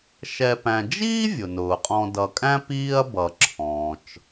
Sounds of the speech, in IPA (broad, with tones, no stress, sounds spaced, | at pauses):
ʃ ɛ˨ p æ̃˨ d͡ʒ iː˥ vʲ ʊ˩ n ʊː˩ qʼ ɔ̃˨ d ʌ˨ kʼ æ̃˥ p iː˦ ɐ̯ b ʌ˨ ǁʰ ɔ̃ː˩ t͡ʃ